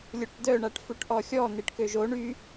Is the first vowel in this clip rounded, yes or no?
yes